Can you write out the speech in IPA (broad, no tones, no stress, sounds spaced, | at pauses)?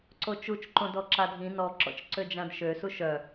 ǀ o t͡ʃ u t͡ʃ ǃ õ d ɔ ǁ a dʱ ĩ n ɔ ǁ ɔ̰ t͡ʃ ǀ ø d͡ʒ ã d ʃ ø s u ʃ œ